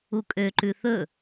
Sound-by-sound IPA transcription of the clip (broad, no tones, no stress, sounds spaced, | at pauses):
u kʼ ø ǃ ʉ θ ɵ